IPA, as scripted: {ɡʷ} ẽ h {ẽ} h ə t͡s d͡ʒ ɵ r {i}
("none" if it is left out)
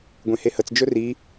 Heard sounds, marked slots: ɡʷ, e, i

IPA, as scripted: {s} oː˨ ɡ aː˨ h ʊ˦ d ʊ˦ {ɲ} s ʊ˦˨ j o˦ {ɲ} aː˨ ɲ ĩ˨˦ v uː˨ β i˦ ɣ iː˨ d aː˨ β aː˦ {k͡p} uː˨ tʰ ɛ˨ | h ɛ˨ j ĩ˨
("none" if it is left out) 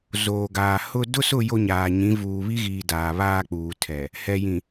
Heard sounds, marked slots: z, none, ɲ, k͡p

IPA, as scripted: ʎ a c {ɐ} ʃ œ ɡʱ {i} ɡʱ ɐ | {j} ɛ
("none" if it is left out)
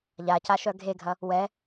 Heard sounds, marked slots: a, e, w

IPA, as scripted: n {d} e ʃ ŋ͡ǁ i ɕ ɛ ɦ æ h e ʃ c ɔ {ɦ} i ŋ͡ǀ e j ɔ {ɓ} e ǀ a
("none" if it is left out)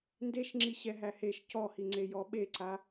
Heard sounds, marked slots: d, h, ɓ

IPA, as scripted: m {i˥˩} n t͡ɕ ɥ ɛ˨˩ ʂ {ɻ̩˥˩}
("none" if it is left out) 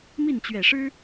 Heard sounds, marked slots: i˥˩, ɻ̩˥

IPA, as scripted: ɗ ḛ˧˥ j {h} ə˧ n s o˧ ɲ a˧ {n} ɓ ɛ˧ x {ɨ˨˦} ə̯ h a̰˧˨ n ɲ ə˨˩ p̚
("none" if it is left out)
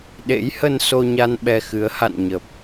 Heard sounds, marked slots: h, n, ɨ˨˦

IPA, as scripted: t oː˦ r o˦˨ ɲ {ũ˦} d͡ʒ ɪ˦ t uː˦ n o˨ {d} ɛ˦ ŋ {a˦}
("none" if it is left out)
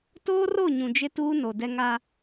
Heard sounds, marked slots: ũ˨, d, a˦

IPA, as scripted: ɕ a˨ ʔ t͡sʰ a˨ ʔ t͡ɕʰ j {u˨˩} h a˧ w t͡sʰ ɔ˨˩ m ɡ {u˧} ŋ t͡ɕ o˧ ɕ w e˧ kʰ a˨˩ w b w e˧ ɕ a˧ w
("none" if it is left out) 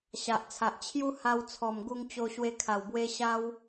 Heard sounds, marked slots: u˦, u˧

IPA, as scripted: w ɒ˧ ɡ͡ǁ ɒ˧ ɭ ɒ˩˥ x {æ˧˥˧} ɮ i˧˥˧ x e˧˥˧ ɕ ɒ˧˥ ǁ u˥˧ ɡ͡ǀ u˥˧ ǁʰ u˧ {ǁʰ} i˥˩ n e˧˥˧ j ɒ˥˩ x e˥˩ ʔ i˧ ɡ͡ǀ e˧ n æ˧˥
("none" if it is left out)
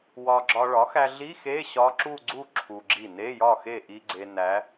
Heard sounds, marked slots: æ˧, ɡ͡ǁ

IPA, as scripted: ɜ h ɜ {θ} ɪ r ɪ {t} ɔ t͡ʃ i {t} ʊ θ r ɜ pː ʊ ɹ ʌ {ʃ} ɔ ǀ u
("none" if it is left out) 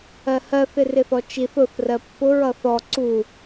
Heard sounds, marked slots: θ, θ, θ, θ

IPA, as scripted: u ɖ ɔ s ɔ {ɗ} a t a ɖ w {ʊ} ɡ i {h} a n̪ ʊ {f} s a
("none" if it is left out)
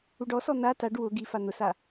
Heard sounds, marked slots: n̪, ʊ, f, none

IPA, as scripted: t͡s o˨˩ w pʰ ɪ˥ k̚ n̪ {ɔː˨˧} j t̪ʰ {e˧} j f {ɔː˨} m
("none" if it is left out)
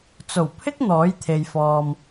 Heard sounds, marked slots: ɔː˨˥, e˨, ɔː˨

